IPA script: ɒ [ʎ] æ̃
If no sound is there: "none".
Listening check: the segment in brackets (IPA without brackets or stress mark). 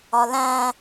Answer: l